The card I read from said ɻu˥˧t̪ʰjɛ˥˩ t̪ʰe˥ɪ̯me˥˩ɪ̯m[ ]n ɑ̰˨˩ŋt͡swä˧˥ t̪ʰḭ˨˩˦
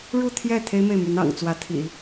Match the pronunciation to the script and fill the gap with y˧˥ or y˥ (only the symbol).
y˧˥